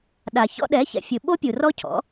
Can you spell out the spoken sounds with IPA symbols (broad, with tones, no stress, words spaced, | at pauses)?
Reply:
ɗa˩ çɔ̰˧ɗɛ˩˥çɛ̰˩fʲɯ˩ ɓo˥pʲu˩ rɔ˥cʰɔ̰˩˥